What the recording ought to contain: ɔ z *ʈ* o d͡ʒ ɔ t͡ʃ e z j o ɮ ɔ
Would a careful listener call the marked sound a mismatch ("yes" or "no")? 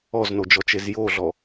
yes